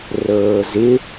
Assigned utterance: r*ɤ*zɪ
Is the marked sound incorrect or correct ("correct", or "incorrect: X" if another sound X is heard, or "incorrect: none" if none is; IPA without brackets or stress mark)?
incorrect: ɤː